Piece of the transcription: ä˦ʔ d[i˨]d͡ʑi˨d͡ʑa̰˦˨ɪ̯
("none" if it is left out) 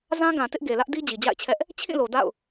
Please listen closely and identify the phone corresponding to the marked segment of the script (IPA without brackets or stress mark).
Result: i˦